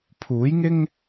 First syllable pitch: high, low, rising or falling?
rising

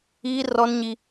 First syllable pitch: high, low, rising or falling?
high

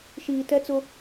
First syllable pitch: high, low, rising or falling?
low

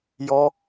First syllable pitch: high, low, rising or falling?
high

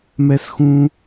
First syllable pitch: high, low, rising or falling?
high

